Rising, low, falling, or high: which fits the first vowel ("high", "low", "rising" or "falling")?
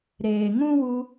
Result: low